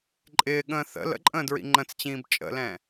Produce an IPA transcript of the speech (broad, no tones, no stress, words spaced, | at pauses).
ǃʼɪːɠə̃ː θə̰ lə̰ǃʼə̃ːdɹḭ ŋ͡ǃə̃t͡st͡ɕĩːb t͡ʃʼə̰lɛ̃